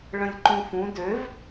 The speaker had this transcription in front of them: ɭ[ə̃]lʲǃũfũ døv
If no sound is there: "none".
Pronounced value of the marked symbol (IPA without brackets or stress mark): ə̃